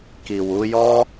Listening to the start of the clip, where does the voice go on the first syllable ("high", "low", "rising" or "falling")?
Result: low